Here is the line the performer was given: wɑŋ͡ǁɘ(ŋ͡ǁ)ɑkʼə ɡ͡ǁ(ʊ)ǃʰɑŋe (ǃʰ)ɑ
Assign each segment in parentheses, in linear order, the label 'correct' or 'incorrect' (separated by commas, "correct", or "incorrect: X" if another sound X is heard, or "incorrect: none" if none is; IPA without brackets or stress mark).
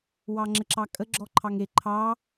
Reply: incorrect: ǁ, incorrect: ɔ, correct